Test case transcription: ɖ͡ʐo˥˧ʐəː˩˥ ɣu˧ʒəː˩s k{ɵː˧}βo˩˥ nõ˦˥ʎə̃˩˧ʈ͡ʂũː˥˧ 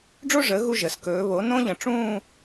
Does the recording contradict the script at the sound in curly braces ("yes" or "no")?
yes